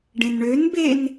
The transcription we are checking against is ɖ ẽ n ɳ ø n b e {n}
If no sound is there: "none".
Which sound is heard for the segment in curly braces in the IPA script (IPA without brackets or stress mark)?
n